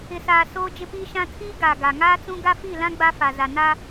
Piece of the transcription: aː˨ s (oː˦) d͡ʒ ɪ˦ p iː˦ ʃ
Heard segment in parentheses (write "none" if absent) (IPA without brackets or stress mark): oː˦